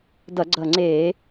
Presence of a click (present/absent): present